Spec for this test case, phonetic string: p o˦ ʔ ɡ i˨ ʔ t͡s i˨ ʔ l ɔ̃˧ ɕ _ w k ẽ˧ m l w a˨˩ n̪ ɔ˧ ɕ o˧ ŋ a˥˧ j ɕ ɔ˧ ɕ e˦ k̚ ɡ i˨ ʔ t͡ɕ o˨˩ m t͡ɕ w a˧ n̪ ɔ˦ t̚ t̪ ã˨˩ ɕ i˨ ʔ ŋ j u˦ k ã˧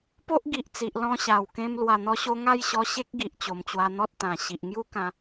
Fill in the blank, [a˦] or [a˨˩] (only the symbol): a˨˩